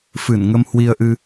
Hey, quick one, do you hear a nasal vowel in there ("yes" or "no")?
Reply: no